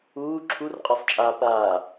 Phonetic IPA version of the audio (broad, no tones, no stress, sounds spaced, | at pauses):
uː ǁʰ u r qʼ a sˤ t͡ʃʼ aː p aː